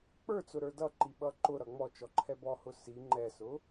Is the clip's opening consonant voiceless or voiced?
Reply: voiceless